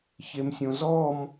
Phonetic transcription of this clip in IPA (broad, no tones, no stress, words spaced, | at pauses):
çemsʲõzɔm